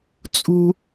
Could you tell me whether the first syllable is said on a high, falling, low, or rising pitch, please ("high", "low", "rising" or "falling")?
high